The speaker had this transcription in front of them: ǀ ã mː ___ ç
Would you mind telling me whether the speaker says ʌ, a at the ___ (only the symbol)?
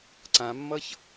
ʌ